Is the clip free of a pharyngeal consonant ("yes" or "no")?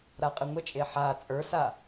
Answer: no